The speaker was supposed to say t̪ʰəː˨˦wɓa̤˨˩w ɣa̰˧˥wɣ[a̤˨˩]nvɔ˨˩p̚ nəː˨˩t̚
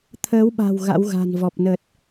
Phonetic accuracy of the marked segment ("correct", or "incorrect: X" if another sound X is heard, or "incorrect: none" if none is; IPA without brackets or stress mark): correct